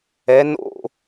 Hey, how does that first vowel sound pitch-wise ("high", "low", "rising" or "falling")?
rising